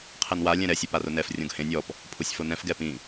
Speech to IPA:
qʰ ɛ n w a lʲ ɛ̃ ɾ ɛ sʲ ɛ p a r ʊ n ɛ f rʲ õ ɡ h ẽ nʲ ɔ p | pʰ u sʲ f o n ɛ̃ f ɡ ɛ p ĩ

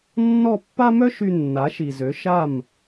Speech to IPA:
nː ɔ˥˩ pː a˥ m œ˥ ʃ y˧ nː a˩˥ ʃ i˩ z ø˩˥ ʃ a˥˩ m

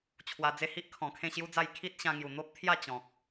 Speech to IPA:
t͡ɕʰ w a˧ d͡z e˥˧ h i˦ ʔ kʰ ɔ̃˨˩ kʰ ẽ˥˧ ɕ j u˦ d͡z a˥˧ j kʰ i˦ t̚ ɕ ã˧ ŋ j u˨˩ n̪ o˦ p̚ t̪ʰ j a˥˧ t͡ɕ ɔ̃˨ k̚

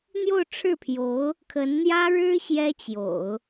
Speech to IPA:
n̪ j o˥˧ ʊ̯ ʈ͡ʂʰ ɻ̩˥˩ pʰ j o˧˥ ʊ̯ | kʰ ə˧˥ n n̪ j ä˥ ɻ ɻ̩˥ ɕ j ɛ˥ t͡ɕ j o̰˨˩˦ ʊ̯

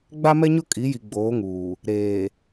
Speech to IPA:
ɡ͡b a˦ m ɛ˦ ɲ ʊ˦ kʼ i˨˦ j i˨ ɡ͡b oː˨˦ ŋ uː˨ | ɾ eː˨

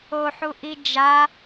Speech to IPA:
o ħ u ʔ i d͡ʒ a

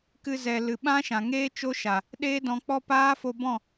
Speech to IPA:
k ɨ˧ z ɛ˨ l ɨ˨ ɓ ã˦ ʃ ã˨ ŋ eː˦ t͡ʃ o˦ ʃ a˨ | ɗ eː˦ d ɔ̃˧ k͡p ɔ˦ p aː˦ f o˧ b ɔ̃˦˨

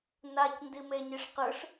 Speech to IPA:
n a c n d i m e ɲ i ʂ q ɯ ʂ

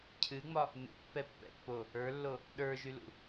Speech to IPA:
cʰ ɨ ŋ͡m ɒ | n ṵ pː ɛ pː ɛ̰ pː o | ə˞ lː o | ɗ ə˞ ʒ y l ṵ

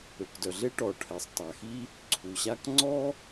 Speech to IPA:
ø˩ k d œ˩ ɮ e˥ ʈ ɔ˩ ʈʰ ɛ˩ sˤ tˤ a˩ x i˥ | ǀʰ u˩ ɕ a˥ k ŋ͡ǀ ɔ˥

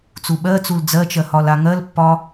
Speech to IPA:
t͡s u ɓ ɜ t͡s u l d͡z ɜ t͡ʃ ɜ h ɒ l a ŋ ɜ l pː ɒ

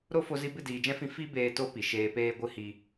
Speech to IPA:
ɾ o˦ f o˧ z i˧ b ɨ˦˨ d iː˨ d͡ʒ ɛ̃˦ f ĩ˧ f i˦ b eː˧ t o˦ p i˨ ʃ eː˧ p eː˦ ɡʷ ɨ˦ h i˦

